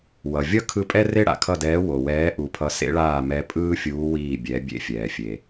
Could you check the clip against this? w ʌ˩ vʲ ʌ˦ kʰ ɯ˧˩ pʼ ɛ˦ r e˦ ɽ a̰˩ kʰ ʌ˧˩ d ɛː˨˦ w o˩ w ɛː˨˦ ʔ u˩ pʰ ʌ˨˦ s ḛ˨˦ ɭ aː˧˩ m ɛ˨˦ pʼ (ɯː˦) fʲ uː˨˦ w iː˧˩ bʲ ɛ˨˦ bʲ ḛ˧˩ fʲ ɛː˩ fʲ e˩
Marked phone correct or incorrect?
correct